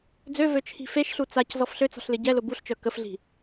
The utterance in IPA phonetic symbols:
d͡zø vøt͡ʃʰi̤feʃɬu t͡sac zɔfɬøt͡sɔ̤ɬ lɪɟɛlʊ buɬt͡ʃœ kəfɮi̤

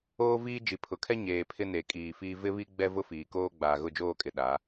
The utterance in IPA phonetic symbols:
oː˦viː˦d͡ʒi˨ pʰʊ˨kʰɛ˦ ɲeː˨ pʰɪ˦ne˨ kʼiː˨fiː˦ vɪ˦βi˦ ɡ͡bɛ˦vʊ˦ fiː˨koː˦ ɡ͡baː˨ɣʊ˦˨d͡ʒoː˦˨kʼɪ˨ ɗa˨˦

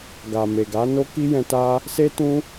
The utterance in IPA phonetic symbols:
ɡa˨ me˨ɡa˨˦ no˦ki˦jɛ̃˧ ta˦ | se˦ tũ˦

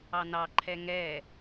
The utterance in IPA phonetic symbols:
ɑnɑǃʰɛ ŋɛ

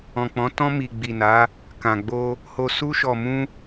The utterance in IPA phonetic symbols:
ɔ̃˨k͡pɔ̃˨˦ tɔ̃˧ mi˨ɡ͡bi˨na˨˦ | kã˨ɡ͡bo˧ | ho˨su˧ʃɔ˨mũ˧

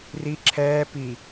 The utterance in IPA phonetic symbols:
ri ǁʰɛː pi

